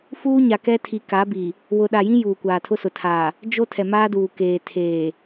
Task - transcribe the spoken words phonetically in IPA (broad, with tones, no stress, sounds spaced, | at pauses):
f uː˦ ɲ a˨ k ɛ˦ tʰ i˨ k a˨˦ b i˨ | w ʊ˨ ɗ a˨ j ĩ˦ j uː˨ kʷ aː˨ tʰ ʊ˦ s ʊ˨ tʰ aː˨ | d͡ʒ o˦ tʰ ɛ˨ m aː˦ d uː˨ k eː˨ tʰ eː˨